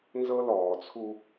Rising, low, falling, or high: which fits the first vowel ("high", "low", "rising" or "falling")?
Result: high